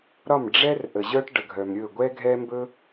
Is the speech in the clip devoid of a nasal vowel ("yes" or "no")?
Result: yes